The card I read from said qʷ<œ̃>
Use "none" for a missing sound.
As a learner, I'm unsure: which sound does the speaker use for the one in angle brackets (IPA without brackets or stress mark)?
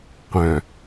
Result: œ̃